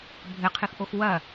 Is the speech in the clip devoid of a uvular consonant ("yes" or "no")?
no